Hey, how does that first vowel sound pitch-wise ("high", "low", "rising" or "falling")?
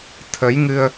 rising